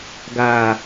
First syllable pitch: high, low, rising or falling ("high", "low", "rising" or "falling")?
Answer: low